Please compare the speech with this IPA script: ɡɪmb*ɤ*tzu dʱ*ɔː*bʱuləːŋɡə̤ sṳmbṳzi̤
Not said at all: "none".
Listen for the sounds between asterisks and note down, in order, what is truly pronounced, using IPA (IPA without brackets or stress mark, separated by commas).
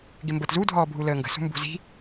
ɤ, ɔː